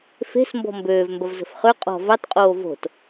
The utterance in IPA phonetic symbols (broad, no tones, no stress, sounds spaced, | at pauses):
f e̤ s m b ɔ̤ m b øː v m b ɐ v z ə̤ f χ ø qʼ ɔ̤ v ɑ t qʼ oː v o̤ t